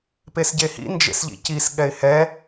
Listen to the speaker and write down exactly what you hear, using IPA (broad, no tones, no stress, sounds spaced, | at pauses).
p e s ɟ e h ḭ n d͡ʒ ḛ s ʎ ḭ c i s ɠ ɛ ɪ̯ h ɛ